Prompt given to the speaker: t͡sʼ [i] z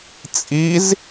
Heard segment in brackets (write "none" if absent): i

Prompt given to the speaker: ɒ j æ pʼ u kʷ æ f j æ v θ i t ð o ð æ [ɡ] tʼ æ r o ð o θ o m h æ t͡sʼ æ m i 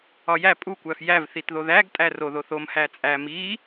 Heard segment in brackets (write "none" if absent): ɡ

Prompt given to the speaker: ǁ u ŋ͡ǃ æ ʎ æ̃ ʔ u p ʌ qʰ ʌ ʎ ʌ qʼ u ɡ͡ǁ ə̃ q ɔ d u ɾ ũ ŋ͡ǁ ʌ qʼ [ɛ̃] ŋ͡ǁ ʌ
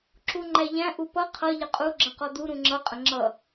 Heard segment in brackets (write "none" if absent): ə̃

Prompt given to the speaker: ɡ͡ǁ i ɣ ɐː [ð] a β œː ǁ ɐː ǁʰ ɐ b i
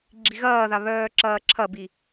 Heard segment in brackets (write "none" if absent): ð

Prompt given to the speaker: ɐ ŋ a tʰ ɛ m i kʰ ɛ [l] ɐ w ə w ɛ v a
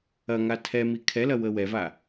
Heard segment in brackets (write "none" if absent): l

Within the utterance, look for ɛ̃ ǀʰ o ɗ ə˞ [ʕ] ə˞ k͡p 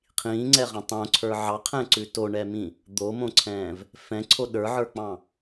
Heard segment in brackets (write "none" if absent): ʕ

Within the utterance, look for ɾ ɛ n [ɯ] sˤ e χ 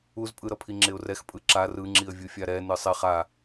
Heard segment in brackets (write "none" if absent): ɯ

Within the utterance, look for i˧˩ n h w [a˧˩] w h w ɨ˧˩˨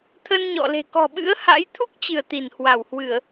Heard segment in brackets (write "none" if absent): a˧˩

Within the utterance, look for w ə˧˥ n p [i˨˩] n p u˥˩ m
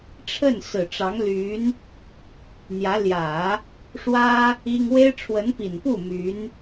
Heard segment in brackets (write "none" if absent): i˨˩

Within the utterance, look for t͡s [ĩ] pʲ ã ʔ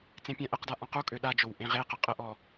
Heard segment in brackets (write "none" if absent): ẽ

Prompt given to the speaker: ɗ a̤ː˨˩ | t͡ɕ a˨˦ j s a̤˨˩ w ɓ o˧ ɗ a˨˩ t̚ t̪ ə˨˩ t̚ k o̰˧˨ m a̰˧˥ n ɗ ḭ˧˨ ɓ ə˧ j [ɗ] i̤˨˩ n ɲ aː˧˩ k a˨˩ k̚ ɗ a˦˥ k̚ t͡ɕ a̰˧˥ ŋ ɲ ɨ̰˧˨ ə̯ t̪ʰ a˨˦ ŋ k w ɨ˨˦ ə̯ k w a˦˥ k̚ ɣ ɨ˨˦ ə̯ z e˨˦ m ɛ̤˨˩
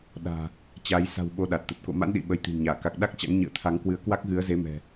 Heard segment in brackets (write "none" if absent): t̪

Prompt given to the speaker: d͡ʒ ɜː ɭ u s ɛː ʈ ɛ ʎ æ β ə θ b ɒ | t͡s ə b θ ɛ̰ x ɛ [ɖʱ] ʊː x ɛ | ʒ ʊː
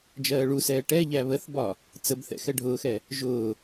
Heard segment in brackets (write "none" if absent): ɖʱ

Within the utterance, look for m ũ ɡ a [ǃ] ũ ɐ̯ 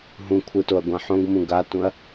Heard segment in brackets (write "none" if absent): t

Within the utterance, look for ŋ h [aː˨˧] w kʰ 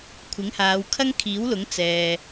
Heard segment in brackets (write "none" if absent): aː˨˧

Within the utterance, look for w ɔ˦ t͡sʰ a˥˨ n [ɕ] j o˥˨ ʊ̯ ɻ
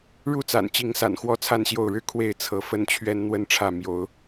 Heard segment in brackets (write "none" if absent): ɕ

